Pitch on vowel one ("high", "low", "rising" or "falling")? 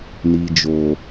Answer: low